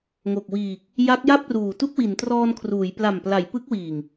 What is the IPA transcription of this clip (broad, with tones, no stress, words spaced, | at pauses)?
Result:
ŋo˨˩k̚wiː˨˩k̚ | ja˦˥k̚ja˥˩p̚ruː˨˩ tu˥˩k̚wi˩˦ntrɔː˧nkʰruː˩˦j pla˨˩mpla˩˦j pɯ˦˥k̚wiː˨˩ŋ